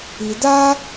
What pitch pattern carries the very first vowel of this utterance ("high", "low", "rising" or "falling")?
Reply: low